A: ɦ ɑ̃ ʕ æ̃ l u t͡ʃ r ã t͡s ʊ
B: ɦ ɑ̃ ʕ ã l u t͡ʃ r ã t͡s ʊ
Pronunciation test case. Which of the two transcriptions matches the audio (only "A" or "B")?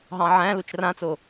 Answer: A